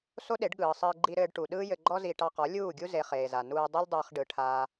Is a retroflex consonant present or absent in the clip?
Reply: present